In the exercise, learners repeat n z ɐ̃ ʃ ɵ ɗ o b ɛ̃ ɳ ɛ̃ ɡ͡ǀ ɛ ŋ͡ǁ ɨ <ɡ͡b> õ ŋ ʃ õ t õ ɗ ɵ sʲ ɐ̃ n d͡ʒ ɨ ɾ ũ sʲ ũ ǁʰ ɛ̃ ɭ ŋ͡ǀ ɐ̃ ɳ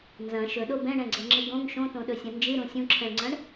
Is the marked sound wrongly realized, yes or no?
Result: yes